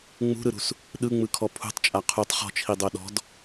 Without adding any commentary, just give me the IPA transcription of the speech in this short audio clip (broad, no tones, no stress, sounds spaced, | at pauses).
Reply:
ŋ͡m ṳ ɾ ɯ ɾ ṳ s | ɗ ɯ ŋ͡m ɯ kʰ ɔ pʰ ṳ tˤ t͡ʃʼ a qʰ u tˤ χ ɔ̤ t͡ʃʰ i dˤ o ɗ ɔ̤ d